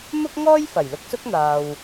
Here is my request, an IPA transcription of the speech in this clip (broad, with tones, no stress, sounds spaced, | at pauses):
m ʊ˥ k̚ ŋ ɔː˥ j f ɐ˨˩ j l ʊ˧ k̚ s ʊ˥ k̚ n̪ aː˧ w